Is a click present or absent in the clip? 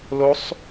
absent